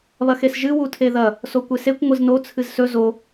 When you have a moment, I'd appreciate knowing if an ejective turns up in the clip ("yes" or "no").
no